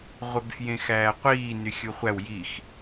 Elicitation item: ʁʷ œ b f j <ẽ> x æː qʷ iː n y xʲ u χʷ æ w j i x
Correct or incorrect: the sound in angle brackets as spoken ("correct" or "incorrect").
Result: correct